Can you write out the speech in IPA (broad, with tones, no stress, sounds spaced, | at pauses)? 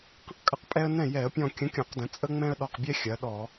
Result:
q ə̃˦ q kʼ ə˧˩ q pʼ ɛ˦ ə̯ n ɛ̃˥˩ j ɛ˧˩˧ ə̯ pʲ ɔ̃˧˩ kʲ ə̃˨˥ kʲ ɔ̃˧˩˧ q d ə̃˩˧ t͡sʼ ə˦ ŋ͡m ɛ̃˦ ə̯ ɗ ɔ˧˩ q bʲ ɛ˦ xʲ ɐ˩˧ ɗ ɔ˧˩˧